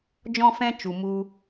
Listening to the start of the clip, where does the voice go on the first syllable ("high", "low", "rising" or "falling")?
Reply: high